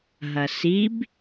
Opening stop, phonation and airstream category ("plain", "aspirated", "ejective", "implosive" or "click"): plain